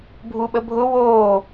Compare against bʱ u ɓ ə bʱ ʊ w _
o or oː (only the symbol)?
oː